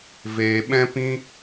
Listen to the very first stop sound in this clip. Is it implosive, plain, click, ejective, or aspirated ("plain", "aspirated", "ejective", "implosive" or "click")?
implosive